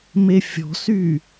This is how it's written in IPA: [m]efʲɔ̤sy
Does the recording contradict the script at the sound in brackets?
no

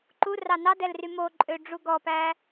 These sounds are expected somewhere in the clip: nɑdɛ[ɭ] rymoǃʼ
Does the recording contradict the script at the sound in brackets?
yes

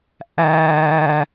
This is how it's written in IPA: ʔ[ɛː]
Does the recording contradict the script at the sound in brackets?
yes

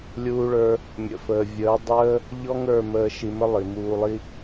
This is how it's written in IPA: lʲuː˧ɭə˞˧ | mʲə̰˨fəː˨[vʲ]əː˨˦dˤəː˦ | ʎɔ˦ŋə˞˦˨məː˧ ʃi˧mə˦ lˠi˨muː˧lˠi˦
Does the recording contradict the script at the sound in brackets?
no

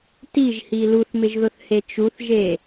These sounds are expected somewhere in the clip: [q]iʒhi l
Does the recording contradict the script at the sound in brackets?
yes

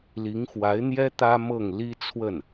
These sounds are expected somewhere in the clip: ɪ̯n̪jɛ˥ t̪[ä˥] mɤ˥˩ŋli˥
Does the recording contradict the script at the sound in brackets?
no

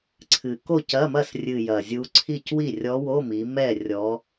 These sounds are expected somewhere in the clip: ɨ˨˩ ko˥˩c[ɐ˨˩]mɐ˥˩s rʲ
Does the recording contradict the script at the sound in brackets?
yes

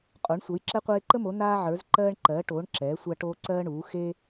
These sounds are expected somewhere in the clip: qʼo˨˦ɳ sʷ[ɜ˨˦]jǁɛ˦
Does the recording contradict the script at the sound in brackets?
no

